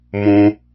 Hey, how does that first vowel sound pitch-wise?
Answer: high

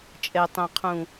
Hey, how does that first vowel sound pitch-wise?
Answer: high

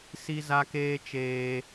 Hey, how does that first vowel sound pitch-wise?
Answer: high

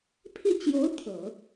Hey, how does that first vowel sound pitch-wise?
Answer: falling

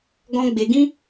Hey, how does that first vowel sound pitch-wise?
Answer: high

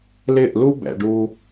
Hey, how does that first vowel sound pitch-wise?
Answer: falling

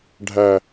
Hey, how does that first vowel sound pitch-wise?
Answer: low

